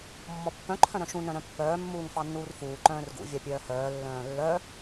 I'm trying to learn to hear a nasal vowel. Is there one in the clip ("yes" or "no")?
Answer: yes